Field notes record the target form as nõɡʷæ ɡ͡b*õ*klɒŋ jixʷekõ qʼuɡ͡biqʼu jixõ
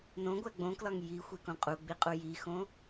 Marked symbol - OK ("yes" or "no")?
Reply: yes